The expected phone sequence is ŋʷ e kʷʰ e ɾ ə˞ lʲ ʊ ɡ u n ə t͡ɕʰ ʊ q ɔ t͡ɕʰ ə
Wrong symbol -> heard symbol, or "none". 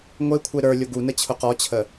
none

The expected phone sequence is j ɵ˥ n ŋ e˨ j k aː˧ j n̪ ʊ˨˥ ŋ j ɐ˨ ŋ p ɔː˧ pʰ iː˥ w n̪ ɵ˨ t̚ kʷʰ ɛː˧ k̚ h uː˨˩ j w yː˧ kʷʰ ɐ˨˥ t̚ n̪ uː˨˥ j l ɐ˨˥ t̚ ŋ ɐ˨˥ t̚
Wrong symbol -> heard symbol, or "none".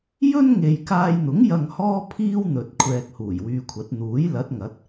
p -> h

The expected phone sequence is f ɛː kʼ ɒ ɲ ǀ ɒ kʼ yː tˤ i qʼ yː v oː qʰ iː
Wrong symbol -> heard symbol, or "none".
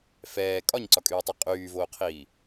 none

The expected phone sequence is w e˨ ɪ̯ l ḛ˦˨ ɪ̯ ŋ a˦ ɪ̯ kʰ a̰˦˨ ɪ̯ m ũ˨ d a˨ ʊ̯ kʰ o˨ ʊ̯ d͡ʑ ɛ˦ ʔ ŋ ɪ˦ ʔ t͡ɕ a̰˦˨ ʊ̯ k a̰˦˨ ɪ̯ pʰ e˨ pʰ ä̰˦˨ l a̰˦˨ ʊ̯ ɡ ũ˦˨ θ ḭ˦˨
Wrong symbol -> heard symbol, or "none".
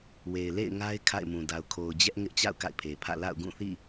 none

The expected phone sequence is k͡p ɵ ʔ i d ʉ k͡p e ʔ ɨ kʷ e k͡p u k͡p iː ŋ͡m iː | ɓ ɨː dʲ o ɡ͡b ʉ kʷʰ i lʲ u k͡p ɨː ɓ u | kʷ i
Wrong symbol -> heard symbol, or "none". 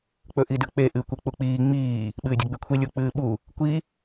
none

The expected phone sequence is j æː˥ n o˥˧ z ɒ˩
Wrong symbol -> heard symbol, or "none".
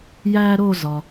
n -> ɾ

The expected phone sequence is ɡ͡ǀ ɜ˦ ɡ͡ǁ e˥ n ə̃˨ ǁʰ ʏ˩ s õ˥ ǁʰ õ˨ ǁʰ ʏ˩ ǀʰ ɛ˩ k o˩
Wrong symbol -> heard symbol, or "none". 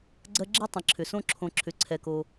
n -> tˤ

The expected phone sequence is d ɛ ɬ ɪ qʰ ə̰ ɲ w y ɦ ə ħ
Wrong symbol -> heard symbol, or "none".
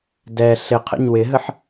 y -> ɪ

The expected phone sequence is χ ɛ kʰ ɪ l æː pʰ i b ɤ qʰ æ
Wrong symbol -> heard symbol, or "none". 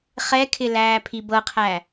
none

